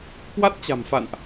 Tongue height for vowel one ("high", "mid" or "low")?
low